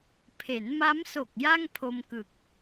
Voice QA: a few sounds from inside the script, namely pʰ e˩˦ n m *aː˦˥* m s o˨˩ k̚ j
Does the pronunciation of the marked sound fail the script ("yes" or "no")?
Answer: yes